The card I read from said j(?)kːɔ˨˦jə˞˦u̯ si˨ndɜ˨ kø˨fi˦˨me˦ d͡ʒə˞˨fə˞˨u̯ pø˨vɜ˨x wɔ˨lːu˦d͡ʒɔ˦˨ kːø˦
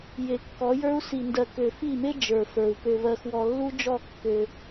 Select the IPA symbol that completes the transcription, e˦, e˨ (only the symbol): e˨